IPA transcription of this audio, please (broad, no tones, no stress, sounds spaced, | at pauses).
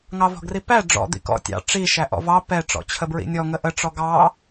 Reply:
ŋ ɑ v ɔ̤ ɡ r i p æ ɖ͡ʐ ɔ̰ d̪ ḭ k ɔ̰ tʲ ɑ̰ ʈ͡ʂ i ʃ æ ʔ ɔ̰ v ɑ p ɛ ʈ͡ʂ ɔ̰ t͡ɕʰ ə b ɹ ḭ nʲ ɔ ŋ ə ʔ ə ʈ͡ʂ ɔ ɡ ɑ